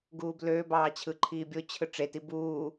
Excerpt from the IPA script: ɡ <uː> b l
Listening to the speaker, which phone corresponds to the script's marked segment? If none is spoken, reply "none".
uː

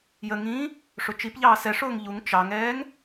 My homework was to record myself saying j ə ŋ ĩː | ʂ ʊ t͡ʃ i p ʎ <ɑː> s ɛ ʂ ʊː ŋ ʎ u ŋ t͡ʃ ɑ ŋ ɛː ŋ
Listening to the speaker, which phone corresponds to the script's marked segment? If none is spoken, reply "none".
ɑː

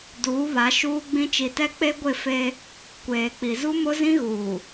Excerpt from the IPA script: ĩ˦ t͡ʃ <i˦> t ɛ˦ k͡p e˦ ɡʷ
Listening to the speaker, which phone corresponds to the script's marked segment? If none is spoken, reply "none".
i˨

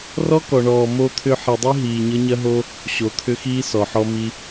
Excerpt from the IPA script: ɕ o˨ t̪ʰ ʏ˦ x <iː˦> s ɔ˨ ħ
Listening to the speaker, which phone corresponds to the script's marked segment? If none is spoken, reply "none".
iː˦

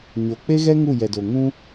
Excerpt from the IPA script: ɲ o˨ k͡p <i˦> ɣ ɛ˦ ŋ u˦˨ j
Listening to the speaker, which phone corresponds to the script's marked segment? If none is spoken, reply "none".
e˦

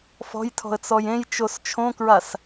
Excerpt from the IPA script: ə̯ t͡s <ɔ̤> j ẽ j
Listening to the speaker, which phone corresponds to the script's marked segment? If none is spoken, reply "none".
ɔ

